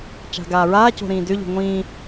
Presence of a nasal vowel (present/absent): present